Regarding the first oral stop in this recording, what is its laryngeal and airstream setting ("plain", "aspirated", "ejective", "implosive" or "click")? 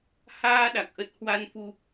implosive